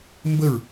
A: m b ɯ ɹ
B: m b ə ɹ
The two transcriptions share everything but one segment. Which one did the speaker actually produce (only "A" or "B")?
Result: B